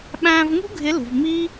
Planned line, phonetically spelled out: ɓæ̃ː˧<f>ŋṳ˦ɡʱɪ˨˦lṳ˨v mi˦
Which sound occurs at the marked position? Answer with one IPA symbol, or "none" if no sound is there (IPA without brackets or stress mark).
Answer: v